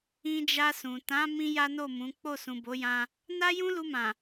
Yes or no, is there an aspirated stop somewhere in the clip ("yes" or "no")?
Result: no